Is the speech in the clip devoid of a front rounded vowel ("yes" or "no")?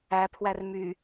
no